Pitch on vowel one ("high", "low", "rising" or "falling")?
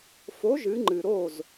rising